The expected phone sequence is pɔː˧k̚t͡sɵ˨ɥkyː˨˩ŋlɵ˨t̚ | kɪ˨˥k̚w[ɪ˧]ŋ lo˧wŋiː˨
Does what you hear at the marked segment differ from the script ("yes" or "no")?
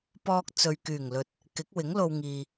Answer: yes